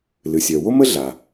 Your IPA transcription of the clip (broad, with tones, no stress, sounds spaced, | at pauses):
l ɨ˩ sʲ œ˩ w o˥ m ə˥ ɮ a˩